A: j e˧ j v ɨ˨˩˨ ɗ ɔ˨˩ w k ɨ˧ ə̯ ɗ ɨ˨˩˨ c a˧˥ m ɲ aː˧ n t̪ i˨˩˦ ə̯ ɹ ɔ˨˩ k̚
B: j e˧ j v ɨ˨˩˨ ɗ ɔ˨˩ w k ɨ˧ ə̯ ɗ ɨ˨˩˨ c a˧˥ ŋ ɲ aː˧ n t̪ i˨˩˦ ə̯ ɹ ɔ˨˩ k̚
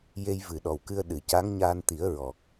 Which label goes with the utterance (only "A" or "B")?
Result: B